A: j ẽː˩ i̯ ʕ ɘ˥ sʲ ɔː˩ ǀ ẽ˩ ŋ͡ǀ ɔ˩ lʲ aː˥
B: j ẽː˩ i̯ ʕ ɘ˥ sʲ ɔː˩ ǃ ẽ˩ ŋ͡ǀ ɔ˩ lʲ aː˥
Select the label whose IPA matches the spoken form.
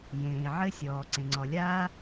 A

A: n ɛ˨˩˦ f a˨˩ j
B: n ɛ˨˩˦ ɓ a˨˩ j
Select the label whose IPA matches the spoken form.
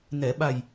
B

